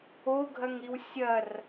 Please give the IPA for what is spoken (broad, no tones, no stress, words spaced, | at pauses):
oɡʱɐŋɾiw sʲɐr